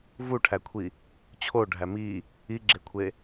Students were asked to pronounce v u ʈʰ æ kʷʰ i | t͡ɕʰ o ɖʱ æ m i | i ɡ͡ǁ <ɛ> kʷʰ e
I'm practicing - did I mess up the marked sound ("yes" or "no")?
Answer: yes